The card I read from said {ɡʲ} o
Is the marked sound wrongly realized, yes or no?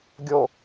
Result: no